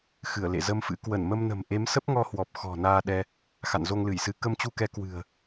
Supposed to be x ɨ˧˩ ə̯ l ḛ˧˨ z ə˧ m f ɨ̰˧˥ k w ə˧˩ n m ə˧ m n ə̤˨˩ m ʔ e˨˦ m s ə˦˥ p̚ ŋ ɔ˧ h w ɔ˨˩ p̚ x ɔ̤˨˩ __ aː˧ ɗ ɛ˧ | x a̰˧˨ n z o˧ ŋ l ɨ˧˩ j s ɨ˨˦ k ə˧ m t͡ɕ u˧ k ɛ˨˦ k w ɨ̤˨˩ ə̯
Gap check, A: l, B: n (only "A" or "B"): B